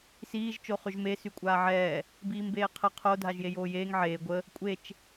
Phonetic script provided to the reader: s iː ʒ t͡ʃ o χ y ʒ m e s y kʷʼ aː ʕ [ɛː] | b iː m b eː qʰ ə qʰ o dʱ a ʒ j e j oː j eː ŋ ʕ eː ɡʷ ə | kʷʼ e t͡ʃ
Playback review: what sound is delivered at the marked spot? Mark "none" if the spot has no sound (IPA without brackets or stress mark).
ɛː